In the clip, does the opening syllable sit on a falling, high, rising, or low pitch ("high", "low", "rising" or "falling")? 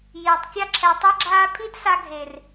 low